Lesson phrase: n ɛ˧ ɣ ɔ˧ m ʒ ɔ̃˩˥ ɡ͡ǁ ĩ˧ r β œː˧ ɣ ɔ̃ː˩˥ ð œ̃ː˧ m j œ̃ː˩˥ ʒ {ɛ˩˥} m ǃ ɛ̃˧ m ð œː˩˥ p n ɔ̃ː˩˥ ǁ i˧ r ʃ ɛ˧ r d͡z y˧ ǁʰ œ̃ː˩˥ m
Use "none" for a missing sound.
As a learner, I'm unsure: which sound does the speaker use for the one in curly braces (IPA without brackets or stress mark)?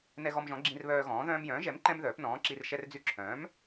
ɛ˩˥